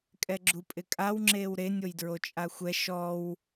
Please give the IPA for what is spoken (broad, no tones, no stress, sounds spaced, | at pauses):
kʼ ɛ ɡ͡ǁ u pʼ ɪ kʼ a w ŋ͡ǁ eː w ɾ e nʲ o j d ɹ o t͡ʃʼ a xʷ ɛ ʃ ɔ w